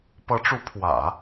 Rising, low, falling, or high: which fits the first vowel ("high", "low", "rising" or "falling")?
rising